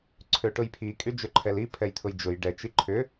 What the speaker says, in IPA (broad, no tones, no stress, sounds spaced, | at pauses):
ǀʰ ø ʈ ʊ j pʰ i kʼ y d͡ʒ ʏ ǃʰ ɛ l i pʰ ɛ j t̪ʰ ʊ j d͡ʒ ʊ j ɖ ɛ t͡ʃ i ǃʰ ʏ